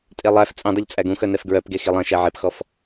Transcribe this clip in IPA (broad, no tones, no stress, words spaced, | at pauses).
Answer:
tʼelˠæf t͡sʼẽdˤɵʎ t͡sʼæɡũxœ nɛfɡɹœpɡe xilˠɛ̃ ʃæʕepxɔf